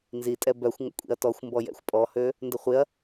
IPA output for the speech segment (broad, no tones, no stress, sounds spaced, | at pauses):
n z i tʼ ɛ b œ xʷ ŋ ə̰ kʷʼ ḭ ɐ̯ t ɔ xʷ m b ɔ j ɛ̰ xʷ pʼ ɔ h ø | n d ə χʷ ɪ ɐ̯